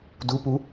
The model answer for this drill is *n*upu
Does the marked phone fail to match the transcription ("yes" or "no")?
yes